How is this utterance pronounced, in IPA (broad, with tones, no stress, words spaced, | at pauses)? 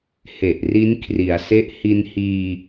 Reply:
he˨˩ʔ ri˦˥nkʰri˩˦a̯se˦˥ʔ hi˧nhiː˧